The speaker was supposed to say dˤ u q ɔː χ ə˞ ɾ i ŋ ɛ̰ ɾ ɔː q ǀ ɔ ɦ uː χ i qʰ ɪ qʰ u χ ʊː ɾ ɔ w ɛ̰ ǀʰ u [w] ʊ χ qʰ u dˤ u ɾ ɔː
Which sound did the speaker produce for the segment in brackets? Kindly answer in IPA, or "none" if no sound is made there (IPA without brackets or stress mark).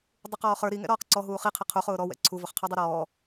v